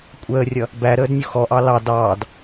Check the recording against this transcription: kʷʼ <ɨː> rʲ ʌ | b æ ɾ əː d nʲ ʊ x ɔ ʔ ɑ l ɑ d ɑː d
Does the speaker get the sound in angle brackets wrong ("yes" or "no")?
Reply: yes